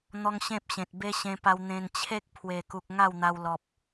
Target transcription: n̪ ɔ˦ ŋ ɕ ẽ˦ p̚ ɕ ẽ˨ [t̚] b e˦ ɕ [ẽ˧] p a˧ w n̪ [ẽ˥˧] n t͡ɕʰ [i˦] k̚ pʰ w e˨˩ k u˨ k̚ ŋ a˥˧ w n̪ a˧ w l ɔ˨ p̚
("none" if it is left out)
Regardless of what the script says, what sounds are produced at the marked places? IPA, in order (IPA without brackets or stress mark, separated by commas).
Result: t̚, ẽ˧, ẽ˧, e˦